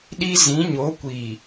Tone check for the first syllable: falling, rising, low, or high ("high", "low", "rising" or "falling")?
high